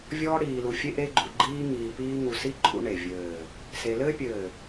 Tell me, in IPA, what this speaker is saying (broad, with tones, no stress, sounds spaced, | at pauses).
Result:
vʲ ɔː˥ ɽ iː˧ l u˧ fʲ e˥ ʔ e˥ ɡ͡ǃ ṵ˧ ɡ͡ǃ iː˥ ŋ iː˧ p iː˥ ŋ u˧ s i˥ ǃʼ ṵ˥ ɳ e˧˩ vʲ ɘː˧˩ | s e˧ l ɘː˥ pʲ ɘː˧˩